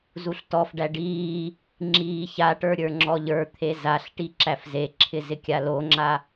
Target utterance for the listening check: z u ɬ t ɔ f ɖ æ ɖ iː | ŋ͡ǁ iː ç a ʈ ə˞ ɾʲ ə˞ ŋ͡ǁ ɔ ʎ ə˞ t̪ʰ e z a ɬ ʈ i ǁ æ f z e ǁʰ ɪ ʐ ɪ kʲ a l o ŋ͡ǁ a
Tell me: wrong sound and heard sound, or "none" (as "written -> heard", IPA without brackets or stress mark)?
ʐ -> z